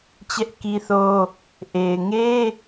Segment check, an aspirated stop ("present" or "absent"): absent